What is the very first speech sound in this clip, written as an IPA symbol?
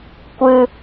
kʷ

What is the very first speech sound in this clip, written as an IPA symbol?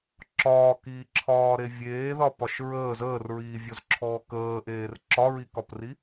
ǁ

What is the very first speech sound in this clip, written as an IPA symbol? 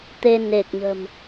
t̪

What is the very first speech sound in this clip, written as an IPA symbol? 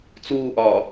t͡s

